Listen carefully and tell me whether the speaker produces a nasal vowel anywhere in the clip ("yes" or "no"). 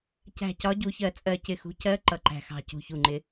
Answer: no